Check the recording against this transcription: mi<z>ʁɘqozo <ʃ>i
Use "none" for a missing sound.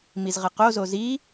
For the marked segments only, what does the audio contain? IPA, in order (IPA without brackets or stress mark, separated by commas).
z, z